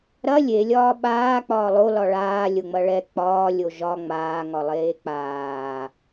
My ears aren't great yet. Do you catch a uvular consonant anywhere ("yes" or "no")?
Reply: no